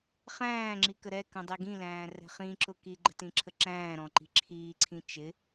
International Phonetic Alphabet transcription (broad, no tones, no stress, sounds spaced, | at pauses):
χ æ̃ː ŋ͡ǁ i k ə ɾ ɛ k ə̃ dˤ i ɡ ĩ l æ̃ː r ɛ̤ χ ĩ ǁ ʊ k i ɡ͡ǃ ə̤ t ĩ ǁʰ ə ǁ æ̃ː ɾ ɔ̃ ǃ i̤ ǁʰ iː ǀʰ ĩ t͡ʃ ɪ